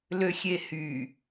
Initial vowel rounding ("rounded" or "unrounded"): rounded